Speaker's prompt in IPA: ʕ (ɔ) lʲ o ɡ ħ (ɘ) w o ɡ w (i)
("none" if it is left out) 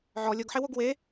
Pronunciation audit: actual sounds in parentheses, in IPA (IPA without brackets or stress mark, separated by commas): ɔ, e, e